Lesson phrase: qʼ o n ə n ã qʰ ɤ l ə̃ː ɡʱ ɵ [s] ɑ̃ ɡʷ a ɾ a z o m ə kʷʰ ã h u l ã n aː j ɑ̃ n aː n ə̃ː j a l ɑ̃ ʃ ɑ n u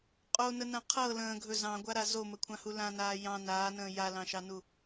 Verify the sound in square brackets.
incorrect: z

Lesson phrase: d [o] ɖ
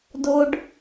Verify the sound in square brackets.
correct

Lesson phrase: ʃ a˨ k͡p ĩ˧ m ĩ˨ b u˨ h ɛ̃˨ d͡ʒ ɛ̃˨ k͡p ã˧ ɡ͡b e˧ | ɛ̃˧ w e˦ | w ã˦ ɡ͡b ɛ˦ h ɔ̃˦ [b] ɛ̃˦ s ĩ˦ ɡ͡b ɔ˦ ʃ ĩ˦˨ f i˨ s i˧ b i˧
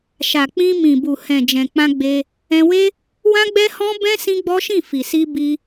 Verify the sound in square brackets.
correct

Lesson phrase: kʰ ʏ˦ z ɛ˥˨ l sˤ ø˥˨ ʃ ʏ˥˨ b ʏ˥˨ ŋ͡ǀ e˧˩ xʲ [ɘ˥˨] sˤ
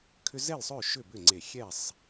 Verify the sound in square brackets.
incorrect: ɛ˥˨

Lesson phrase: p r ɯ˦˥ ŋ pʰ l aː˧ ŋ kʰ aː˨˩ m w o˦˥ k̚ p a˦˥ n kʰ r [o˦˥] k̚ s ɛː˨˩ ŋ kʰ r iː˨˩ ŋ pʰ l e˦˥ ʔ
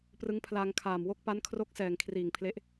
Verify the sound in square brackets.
correct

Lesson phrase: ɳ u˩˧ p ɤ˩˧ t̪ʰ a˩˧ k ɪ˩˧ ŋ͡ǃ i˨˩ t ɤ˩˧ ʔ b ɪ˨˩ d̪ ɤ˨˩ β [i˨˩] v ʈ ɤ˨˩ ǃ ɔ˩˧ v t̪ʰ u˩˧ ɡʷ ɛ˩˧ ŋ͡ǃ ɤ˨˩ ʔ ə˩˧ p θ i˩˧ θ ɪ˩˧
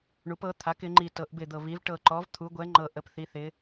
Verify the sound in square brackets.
incorrect: i˩˧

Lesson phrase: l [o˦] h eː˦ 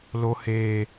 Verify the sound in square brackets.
correct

